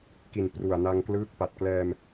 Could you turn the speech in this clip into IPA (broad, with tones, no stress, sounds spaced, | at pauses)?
k i˨˩ n p r u˨˩ a̯ n a˧ ŋ k l ɯː˦˥ k̚ p a˨˩ t̚ k l ɛː˧ m